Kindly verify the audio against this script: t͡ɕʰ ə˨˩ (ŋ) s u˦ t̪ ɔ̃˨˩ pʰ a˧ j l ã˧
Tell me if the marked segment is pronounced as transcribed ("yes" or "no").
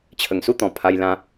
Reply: yes